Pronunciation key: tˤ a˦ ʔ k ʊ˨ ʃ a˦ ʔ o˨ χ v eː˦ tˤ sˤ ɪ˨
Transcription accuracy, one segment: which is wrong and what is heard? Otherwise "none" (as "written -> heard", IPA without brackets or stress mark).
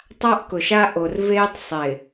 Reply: χ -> r